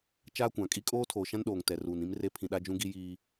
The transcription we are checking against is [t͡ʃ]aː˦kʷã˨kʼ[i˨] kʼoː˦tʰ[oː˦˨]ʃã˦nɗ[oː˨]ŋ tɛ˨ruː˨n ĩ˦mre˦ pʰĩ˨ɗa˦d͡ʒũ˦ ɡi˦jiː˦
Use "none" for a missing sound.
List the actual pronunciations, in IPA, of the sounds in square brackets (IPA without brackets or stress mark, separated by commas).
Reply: t͡ʃ, i˦, oː˨, oː˨